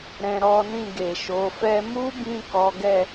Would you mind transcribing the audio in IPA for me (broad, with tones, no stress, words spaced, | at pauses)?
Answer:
ɾɛ̃˨ ɾɔ˨˦nĩ˦˨ɡe˨ ʃo˨fɛ˧mu˦ bĩ˦˨kɔ˨˦ɡɛ˦˨